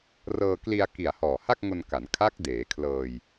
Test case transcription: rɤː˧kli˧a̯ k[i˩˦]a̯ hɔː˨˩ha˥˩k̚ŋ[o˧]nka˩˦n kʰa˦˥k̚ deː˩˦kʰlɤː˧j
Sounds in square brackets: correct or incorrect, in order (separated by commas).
incorrect, correct